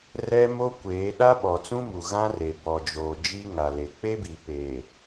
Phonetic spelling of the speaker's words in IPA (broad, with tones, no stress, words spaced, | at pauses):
rɛ˦ mo˦kʷeː˨˦ ɗa˦ɓɔ˨t͡sũ˦mu˨ ɣã˦ re˨ bɔ˨ d͡ʒoː˨ d͡ʒi˦ ŋa˨le˨ k͡pe˦bi˨peː˨